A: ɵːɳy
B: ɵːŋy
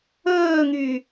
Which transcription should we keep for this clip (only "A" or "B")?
B